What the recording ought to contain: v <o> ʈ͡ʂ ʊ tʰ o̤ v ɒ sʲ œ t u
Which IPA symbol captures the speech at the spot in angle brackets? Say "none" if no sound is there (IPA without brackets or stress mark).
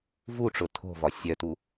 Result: u